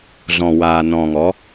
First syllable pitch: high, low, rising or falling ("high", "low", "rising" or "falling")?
low